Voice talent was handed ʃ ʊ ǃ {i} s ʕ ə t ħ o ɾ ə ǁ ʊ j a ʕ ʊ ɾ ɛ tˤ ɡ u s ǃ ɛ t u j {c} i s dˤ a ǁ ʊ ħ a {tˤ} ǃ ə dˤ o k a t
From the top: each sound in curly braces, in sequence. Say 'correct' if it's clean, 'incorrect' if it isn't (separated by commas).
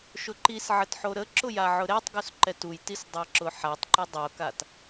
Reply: correct, incorrect, correct